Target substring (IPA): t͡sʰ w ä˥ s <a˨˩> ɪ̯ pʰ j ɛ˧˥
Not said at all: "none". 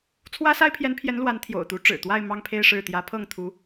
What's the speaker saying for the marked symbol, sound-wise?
a˥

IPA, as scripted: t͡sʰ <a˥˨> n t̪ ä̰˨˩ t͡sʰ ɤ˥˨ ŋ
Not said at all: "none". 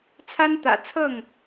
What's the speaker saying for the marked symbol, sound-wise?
a˦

